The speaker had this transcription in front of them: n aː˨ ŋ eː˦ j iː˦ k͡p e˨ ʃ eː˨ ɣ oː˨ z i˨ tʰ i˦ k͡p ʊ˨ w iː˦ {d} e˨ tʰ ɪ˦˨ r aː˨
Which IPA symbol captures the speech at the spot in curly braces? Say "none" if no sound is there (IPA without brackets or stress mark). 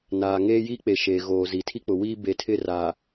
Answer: b